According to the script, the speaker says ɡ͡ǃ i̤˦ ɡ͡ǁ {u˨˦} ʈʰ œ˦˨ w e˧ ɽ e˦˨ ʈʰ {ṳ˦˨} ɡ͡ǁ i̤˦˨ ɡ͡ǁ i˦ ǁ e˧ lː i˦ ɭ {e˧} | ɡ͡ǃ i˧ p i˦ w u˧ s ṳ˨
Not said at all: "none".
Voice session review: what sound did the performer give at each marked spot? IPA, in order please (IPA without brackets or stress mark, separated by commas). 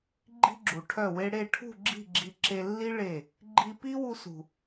u˨, ṳ˦˨, e˦˨